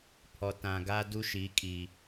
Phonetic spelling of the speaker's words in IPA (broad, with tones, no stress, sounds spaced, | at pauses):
pʰ ɔ˨ t ã˨ ɡ a˦ d u˦ ʃ i˨˦ kʼ i˨